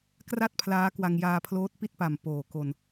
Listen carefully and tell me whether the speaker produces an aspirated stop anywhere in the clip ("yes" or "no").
yes